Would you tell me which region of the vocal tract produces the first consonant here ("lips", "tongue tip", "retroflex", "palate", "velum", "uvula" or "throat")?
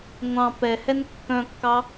velum